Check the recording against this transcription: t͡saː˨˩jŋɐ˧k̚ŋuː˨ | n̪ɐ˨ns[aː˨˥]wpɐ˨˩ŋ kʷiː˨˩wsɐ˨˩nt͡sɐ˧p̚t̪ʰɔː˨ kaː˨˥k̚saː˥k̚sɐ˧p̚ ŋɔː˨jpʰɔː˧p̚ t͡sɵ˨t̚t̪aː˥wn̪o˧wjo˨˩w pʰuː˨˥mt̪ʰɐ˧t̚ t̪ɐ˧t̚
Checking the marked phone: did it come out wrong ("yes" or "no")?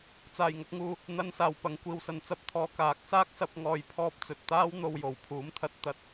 yes